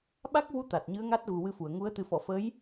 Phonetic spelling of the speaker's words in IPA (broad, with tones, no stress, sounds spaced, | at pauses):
ɓ a˦˥ k̚ v u˧˥ t̪ a˨˩ t̚ ɲ ɨ˧˥ ə̯ ŋ a˦˥ t̚ ɣ u˨˩ w ɨ˧ f u˨˩˨ ə̯ ŋ u˧˥ ə̯ t̪ ɨ˨˩ f ɔ˨˩˨ f ə˧˥ j